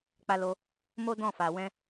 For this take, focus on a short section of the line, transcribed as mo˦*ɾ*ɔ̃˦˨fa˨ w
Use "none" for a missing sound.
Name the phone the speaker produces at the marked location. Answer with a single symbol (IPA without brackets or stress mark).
d